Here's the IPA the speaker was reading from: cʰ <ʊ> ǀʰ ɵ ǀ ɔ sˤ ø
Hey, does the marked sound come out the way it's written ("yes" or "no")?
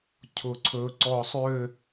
yes